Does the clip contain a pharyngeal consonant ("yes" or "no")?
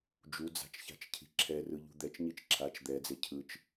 no